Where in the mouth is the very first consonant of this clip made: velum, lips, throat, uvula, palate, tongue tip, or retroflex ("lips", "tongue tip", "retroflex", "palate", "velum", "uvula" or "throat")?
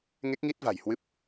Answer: velum